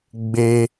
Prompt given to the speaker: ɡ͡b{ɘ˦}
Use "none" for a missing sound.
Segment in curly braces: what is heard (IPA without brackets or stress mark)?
e˦